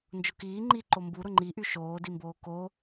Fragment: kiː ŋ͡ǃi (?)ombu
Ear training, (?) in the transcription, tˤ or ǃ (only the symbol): ǃ